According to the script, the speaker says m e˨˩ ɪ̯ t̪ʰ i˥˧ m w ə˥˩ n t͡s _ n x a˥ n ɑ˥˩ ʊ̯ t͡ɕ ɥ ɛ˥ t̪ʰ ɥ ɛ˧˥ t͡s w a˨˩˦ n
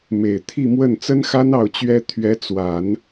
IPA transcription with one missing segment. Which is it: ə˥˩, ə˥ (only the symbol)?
ə˥